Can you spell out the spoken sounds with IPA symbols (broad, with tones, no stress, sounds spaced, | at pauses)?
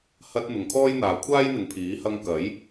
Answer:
h ɐ˧ t̚ n̪ ʊ˨˧ ŋ kʰ ɔː˥ j n̪ aː˨ kʷʰ aː˥ j n̪ ɪ˨ ŋ pʰ iː˨˥ h ɐ˧ ŋ k ɐ˨˥ j